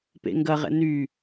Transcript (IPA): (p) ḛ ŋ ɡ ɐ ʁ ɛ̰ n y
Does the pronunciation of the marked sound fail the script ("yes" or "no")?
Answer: no